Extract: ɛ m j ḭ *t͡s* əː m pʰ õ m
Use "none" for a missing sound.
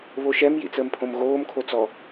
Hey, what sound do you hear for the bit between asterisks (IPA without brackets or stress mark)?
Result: t͡s